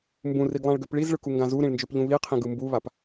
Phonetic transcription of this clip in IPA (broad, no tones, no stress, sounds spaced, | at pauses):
m b ũ r i ɡ lˠ ã ɭ ɡ ø p ɭ i z ɭ ɯ k u ŋ ɡ ã z u ɾ ĩ ɭ n d͡ʒ ø p ʎ ũ β i qʰ ĩ ɡ ɯ m b u β a p